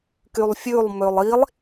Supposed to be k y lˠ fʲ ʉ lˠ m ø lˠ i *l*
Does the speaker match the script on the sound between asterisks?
no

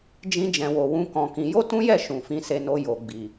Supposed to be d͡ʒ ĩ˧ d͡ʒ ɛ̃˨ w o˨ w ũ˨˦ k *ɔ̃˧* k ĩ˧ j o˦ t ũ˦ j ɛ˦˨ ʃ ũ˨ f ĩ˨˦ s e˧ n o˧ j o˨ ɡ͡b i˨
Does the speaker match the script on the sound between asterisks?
yes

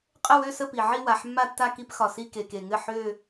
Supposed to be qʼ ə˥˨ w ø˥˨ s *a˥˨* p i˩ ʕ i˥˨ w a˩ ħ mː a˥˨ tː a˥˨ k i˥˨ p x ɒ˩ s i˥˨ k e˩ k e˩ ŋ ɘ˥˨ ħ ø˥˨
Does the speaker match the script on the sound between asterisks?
no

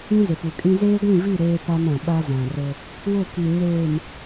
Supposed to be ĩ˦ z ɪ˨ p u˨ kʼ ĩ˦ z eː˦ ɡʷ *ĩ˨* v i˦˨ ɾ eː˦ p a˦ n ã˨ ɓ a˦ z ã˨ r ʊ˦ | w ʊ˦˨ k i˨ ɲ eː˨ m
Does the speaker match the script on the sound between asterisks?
no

